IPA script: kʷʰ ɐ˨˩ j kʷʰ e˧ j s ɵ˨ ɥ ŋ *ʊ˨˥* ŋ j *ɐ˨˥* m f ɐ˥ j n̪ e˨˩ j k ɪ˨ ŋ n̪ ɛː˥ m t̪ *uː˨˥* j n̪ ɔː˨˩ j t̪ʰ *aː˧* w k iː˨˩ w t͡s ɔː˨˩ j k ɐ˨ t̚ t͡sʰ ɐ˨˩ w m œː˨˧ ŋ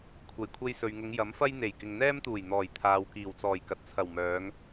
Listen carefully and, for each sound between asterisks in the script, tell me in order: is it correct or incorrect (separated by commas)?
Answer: incorrect, correct, incorrect, incorrect